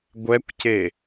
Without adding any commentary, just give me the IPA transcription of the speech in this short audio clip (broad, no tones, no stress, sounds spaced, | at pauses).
ɡʷ ɛ kʷ c e